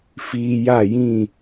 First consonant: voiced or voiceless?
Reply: voiceless